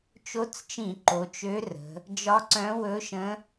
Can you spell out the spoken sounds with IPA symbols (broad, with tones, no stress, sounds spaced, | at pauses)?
t͡ʃ o˧˥ t͡s t͡ʃ ĩ˧˩˧ ǃ o˩˧ t͡ʃ ø˧˥ r ə̤˩˧ | d͡ʒ ɒ˧˥ ǀ œ̃˧˥ w ɵ˧˥ ʃ ə̃˧˥